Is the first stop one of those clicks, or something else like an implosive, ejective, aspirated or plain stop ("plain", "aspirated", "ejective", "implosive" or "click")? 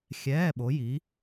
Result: implosive